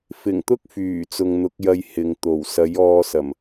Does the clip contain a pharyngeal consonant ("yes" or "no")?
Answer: no